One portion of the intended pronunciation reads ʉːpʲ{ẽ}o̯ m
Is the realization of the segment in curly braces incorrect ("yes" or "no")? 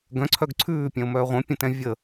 yes